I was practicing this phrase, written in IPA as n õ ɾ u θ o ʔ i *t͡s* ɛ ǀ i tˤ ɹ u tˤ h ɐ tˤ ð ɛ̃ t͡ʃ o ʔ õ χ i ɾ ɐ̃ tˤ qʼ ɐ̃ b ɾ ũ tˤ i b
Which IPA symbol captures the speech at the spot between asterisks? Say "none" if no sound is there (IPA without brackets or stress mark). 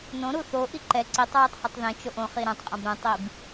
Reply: ǃ